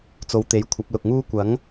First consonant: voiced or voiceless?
voiceless